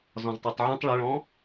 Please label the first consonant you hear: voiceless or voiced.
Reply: voiced